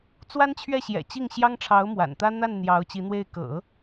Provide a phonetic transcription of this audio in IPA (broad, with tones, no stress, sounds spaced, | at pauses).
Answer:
t͡s w a˥ n t͡ɕʰ ɥ ɛ˥˩ ɕ j ɛ̰˨˩ t͡ɕ i˥˩ ŋ ɕ j ɑ˥ ŋ ʈ͡ʂʰ ɑ˧˥ ʊ̯ m w a̰˨˩ n t̪ ä˥ n̪ a˥˩ n n̪ j ɑ˧˥ ʊ̯ t͡ɕ i˧˥ n̪ w e˥˩ ɪ̯ k ɤ̰˨˩˦